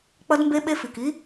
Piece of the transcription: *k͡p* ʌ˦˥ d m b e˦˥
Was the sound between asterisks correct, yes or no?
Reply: yes